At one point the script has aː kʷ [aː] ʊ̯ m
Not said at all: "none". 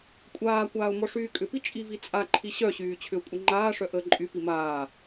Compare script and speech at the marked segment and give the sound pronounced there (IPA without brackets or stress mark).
aː